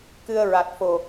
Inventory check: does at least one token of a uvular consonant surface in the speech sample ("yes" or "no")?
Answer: no